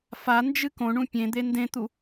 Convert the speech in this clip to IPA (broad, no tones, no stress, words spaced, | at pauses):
fand͡ʒɨ kõɳũ pʲẽd̪e ndẽt̪u